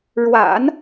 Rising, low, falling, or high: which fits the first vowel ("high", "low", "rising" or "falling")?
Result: low